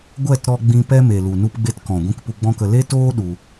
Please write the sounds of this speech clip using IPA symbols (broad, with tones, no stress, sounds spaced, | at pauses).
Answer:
ɡʷ ɛ˦˨ t ɾ ɔ˧ ɡ͡b ĩ˧ p ɛ˦ m e˨ l u˨ n u˦ p ɡ͡b e˦ t k ɔ̃˨ ɡʷ ĩ˧ k p u˧ ɡ͡b ɔ̃˦ k ə˧ l e˦ t oː˦ ɗ u˧